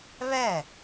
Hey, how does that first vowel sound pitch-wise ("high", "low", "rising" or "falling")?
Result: falling